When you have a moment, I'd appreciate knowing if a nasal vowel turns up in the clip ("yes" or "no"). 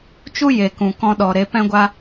yes